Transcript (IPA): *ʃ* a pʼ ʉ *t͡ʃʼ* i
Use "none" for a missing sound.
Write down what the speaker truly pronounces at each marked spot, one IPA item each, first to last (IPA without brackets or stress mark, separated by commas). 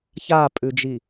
ç, d͡ʒ